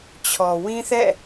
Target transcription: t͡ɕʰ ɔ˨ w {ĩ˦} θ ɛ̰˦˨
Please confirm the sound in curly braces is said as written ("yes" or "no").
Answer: yes